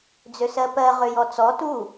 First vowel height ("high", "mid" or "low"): mid